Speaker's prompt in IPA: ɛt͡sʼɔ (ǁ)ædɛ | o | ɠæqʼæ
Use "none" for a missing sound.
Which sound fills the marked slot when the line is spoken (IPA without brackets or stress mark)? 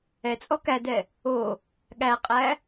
k